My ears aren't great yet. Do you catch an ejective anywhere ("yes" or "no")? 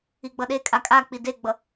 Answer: yes